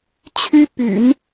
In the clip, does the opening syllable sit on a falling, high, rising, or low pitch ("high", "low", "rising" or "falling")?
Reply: high